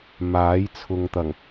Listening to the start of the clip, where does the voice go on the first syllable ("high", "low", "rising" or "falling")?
rising